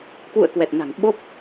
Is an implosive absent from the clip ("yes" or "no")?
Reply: no